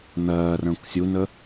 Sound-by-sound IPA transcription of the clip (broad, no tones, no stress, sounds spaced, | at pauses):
n̪ ɜː r ə̃ː kʷ sʲ u n ə